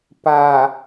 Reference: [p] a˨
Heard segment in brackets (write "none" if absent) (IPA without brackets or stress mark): p